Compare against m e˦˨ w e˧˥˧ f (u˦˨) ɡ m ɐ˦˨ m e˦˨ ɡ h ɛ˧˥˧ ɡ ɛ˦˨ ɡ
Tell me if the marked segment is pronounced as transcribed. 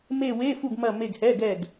yes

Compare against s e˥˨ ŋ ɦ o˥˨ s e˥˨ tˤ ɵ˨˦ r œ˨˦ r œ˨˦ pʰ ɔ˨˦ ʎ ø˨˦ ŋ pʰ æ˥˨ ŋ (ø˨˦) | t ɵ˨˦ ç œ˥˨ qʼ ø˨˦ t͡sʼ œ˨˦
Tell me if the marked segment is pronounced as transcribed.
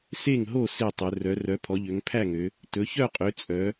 yes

